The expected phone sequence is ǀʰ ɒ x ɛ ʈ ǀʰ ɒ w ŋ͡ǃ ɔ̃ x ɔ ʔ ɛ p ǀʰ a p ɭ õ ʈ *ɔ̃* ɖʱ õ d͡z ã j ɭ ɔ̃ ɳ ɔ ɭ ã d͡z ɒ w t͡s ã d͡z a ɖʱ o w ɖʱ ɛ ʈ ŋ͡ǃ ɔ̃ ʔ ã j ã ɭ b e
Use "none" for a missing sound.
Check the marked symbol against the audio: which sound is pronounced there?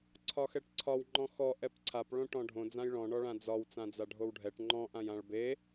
ɔ̃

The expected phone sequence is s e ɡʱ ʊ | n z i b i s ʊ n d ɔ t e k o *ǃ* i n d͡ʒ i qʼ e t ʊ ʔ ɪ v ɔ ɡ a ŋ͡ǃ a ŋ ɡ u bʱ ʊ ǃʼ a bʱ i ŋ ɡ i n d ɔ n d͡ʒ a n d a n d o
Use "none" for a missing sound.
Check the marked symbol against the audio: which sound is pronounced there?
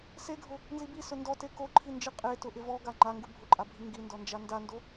ǃʰ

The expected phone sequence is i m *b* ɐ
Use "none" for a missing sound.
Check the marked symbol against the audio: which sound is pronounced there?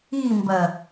b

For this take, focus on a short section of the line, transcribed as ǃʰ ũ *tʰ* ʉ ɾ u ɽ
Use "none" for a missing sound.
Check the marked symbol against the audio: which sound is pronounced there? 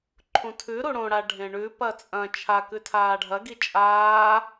tʰ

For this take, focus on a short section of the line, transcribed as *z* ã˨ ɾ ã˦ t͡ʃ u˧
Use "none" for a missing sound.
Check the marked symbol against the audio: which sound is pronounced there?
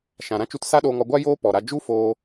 ʃ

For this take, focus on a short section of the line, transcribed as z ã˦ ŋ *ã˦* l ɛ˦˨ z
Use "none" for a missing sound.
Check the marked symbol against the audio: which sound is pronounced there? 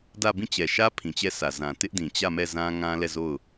ã˦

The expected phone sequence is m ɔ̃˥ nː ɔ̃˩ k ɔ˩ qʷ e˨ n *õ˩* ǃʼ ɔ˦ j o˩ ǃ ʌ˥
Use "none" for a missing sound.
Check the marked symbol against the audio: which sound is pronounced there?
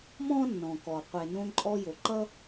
õ˦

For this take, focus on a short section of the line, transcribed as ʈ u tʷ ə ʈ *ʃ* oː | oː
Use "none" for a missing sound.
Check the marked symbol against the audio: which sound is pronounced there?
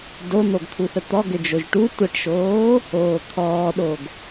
ʃ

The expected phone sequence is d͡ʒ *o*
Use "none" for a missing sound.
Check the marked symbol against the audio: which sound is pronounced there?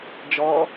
ɔ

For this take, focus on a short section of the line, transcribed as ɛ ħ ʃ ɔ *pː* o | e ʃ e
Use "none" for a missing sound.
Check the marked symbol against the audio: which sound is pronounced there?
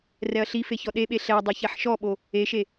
ɓ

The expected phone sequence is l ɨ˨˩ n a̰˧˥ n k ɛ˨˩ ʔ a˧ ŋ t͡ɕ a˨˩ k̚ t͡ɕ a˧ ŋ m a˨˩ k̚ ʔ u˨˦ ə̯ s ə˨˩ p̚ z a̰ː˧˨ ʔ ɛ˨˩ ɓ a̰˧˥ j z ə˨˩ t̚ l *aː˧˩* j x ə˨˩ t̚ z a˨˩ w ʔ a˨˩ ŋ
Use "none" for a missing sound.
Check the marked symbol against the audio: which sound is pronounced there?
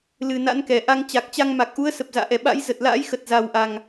a̰ː˧˥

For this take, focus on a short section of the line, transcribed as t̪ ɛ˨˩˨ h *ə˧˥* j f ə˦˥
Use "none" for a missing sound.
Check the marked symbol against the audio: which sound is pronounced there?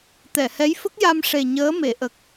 ɛ˧˥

